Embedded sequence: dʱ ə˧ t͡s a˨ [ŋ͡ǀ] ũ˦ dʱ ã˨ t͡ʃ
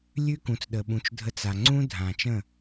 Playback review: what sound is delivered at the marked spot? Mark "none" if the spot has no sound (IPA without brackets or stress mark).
ŋ͡ǀ